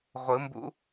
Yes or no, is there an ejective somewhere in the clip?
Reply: no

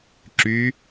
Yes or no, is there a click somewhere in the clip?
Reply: yes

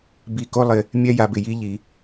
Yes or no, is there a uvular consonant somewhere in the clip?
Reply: no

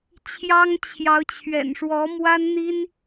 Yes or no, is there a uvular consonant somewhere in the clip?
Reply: no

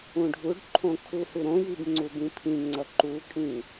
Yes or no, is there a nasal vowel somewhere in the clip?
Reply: yes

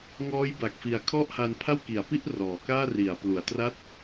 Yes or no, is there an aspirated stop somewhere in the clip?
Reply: yes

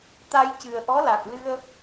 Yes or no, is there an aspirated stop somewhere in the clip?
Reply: no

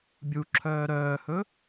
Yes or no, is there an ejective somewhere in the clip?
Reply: no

